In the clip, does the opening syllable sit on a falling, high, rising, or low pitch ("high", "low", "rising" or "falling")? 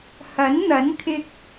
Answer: rising